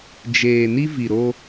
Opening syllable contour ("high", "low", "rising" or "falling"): low